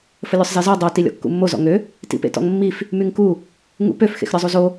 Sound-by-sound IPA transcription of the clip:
fəlʲøsˤzezɔ dˤo tilʲɔ̰kːṵmːo zɔ̰ŋø | tḭpḛtɔ̰ŋmːif | myŋku | ŋṵpøf xḛxɾʲɔzˤuzo

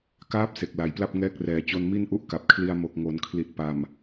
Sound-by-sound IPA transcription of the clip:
kaː˦˥p̚ se˨˩k̚la˨˩jpla˥˩p̚ ŋɛː˦˥k̚rɛː˨˩ t͡ɕo˧nmi˥˩nʔu˦˥ʔ ka˨˩p̚kʰli˧a̯ mo˨˩k̚ŋo˩˦n kʰli˨˩t̚ pa˨˩m

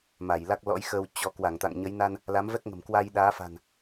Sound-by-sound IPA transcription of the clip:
ma˧˩jla˦˥k̚lɔ̰˧˥jxəː˧w t͡ɕɔ˨˦ kwa˧˩ŋt̪a̰˧˨ŋɲə˨˦jna˧n | la˨˦mvɛ˦˥k̚ŋə̤˨˩mkwa˧j ɗaː˨˦fa̤˨˩n

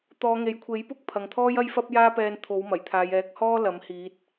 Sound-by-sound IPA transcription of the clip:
t̪ɔː˨˧ŋe˨jkʷʰe˨˥jpʊ˥k̚ pʰɐ˨ŋt̪ʰɔː˥j ɐ˥jfɐ˥p̚jaː˥pɛː˧n t̪ʰo˨˥wmɐ˨˩jt̪ʰaː˨˧j ɛː˨˥k̚hɔː˥ lɐ˨˥mhiː˨˥t̚

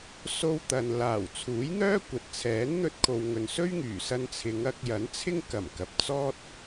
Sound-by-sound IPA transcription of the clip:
so˧w t̪ɐ˨n laː˨˩wt͡sʰuː˨˥jn̪œː˥ kʷɐ˨t̚t͡sʰɛː˨˥nn̪ɵ˧t̚ kʰo˨wŋɵ˨nsɵ˥ɥ ŋyː˨˩ sɐ˧nt͡sʰɪ˨˧ŋɐ˧k̚jɐ˨˥n t͡sʰɪ˥ŋkɐ˨˩mkɐ˨p̚ t͡sɔː˥t̚

